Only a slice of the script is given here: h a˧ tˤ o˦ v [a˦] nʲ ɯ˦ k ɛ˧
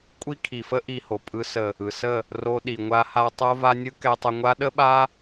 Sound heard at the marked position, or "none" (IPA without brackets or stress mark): a˦